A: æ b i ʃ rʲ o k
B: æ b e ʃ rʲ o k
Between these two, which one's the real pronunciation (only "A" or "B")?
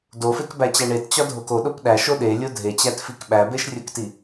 B